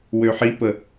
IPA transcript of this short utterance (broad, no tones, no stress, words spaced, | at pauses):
wøħipə